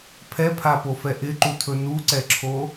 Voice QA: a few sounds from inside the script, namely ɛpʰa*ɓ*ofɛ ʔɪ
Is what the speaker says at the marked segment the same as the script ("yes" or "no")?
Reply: no